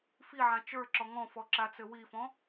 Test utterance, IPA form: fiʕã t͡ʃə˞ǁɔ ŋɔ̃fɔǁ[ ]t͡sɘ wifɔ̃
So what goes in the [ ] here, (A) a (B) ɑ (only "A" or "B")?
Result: A